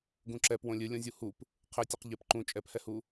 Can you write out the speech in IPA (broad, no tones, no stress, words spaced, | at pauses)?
ɡũǁɛp wõlʲɨ lʲõzʲuhup | qʰɘtʲɨq ʎɘp ǃũ t͡ʃʼɛphɛhu